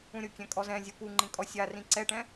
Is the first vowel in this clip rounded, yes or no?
yes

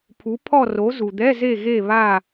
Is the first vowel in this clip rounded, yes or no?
yes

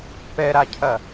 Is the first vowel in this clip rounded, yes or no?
no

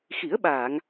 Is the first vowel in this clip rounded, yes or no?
no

